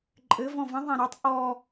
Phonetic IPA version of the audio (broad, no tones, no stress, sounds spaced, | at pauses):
ǃʼ ɘ v ɔ̃ v ə̃ ðˤ ã ɾ a tˤ ʔ ɔ